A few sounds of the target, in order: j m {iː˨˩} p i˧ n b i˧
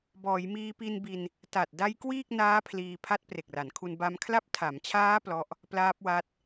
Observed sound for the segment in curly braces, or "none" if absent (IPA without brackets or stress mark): iː˧